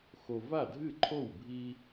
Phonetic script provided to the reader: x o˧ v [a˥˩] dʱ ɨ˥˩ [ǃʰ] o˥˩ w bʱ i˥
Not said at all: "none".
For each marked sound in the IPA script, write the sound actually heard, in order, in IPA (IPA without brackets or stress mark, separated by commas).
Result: a˥˩, ǃʰ